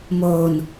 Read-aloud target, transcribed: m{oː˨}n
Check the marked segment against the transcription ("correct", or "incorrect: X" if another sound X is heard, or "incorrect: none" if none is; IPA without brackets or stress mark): correct